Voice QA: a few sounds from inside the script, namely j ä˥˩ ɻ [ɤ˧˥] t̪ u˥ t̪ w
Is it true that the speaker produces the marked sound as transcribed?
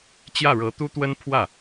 yes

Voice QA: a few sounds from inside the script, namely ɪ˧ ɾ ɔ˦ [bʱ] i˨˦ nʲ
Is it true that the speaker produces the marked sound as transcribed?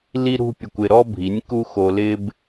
yes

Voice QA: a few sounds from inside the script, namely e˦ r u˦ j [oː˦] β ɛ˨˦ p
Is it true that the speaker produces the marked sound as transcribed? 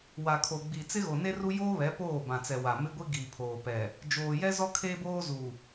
yes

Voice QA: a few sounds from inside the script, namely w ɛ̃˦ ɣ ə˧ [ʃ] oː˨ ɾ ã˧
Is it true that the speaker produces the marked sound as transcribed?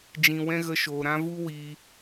yes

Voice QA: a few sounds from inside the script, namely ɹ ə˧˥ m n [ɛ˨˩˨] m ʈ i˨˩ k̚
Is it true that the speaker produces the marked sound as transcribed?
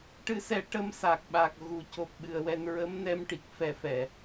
no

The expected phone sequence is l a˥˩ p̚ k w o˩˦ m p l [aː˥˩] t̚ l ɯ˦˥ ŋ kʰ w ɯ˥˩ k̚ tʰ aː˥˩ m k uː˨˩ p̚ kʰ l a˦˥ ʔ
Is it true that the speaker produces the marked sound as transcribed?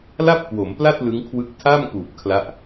no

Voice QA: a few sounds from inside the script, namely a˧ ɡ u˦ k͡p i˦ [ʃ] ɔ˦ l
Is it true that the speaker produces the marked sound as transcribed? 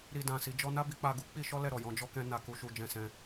yes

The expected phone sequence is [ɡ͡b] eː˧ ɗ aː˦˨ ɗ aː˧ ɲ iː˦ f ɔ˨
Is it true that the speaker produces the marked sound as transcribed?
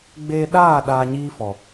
yes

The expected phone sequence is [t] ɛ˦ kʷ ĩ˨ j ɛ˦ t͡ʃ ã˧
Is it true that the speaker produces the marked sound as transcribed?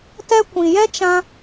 yes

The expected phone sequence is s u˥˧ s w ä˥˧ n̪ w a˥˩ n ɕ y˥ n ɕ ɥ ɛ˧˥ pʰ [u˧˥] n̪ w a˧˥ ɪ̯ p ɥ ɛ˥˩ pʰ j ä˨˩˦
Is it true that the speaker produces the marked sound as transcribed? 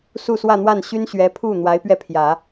no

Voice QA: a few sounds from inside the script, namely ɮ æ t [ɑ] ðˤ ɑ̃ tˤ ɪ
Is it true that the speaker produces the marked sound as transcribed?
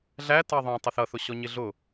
yes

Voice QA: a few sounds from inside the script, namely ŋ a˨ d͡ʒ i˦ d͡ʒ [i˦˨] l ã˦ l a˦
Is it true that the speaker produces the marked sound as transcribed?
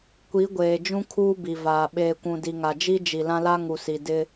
no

